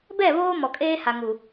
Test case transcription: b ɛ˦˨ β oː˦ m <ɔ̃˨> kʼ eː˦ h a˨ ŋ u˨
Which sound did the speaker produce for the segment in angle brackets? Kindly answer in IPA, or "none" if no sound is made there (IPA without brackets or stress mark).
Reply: ɔ˨